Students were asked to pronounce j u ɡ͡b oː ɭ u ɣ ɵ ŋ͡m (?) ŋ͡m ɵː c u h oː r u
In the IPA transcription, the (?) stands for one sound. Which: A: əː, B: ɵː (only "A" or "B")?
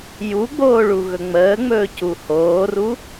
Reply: A